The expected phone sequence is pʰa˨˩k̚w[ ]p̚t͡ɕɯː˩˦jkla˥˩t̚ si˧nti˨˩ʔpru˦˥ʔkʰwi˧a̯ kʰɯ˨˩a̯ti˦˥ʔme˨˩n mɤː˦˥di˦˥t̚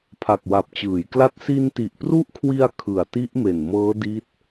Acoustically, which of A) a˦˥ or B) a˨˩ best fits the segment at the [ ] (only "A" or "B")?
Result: B